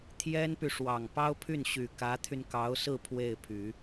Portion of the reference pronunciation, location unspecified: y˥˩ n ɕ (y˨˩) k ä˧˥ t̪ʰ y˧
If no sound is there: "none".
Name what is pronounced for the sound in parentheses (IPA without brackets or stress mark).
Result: y˨˩